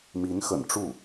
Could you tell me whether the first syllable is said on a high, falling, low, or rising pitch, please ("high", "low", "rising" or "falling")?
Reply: rising